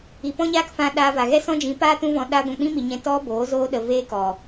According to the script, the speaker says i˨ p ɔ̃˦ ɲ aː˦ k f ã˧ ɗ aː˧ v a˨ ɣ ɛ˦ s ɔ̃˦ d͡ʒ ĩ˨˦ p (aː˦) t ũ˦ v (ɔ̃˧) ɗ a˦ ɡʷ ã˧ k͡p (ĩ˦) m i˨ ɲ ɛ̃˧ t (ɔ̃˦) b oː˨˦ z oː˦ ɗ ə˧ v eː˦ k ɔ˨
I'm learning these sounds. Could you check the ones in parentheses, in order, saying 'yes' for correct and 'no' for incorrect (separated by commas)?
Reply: yes, yes, yes, no